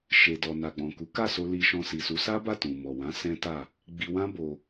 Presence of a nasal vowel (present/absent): present